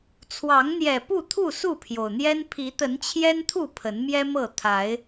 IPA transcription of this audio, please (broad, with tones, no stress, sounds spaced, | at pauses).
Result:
t͡sʰ w ɑ˨˦ ŋ n̪ j ɛ˨˩ p u˥˨ t̪ʰ u˥˨ s u˥˨ pʰ j o˩ ʊ̯ n̪ j ɛ˦ n pʰ i˨˦ t̪ ə˨˦ n t͡ɕʰ j ɛ˦ n t̪ʰ u˥˨ pʰ ə˨˦ n m j ɛ˦ m ɤ˥˨ t̪ʰ a˨˦ ɪ̯